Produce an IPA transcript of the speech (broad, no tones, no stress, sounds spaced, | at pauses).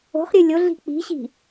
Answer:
o̤ χ ɾʲ ɨ lʲ o ɮ i̤ k͡p i̤ ɕ i̤